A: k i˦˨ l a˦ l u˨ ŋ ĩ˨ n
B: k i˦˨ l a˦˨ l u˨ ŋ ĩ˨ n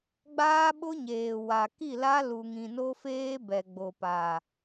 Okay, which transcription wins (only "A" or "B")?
A